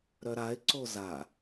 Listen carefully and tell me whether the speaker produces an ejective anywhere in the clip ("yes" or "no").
no